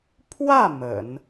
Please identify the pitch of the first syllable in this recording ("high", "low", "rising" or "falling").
falling